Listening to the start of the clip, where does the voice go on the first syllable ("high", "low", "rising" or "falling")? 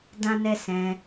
high